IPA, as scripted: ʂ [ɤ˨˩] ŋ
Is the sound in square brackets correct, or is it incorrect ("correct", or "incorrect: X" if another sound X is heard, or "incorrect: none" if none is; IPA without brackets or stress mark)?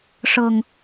correct